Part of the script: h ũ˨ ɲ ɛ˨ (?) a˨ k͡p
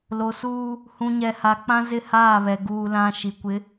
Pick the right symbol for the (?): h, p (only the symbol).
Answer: h